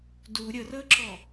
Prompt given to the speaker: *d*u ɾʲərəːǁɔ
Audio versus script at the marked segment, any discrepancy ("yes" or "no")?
no